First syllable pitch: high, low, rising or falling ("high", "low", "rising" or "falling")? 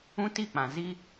high